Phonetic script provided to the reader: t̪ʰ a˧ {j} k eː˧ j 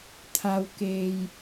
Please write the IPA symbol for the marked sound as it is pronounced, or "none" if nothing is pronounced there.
w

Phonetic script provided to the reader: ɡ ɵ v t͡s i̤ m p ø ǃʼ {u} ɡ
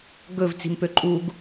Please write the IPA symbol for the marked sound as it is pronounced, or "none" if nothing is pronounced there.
u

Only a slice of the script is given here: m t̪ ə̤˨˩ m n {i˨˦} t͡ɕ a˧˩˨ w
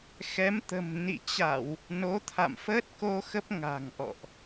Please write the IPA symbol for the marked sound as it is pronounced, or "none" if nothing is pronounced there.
ḭ˧˨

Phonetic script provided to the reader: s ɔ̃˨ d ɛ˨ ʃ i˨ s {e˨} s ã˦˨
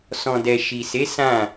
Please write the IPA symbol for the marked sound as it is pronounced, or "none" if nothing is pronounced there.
e˨˦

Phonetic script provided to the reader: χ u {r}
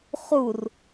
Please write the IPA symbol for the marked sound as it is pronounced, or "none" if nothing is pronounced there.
r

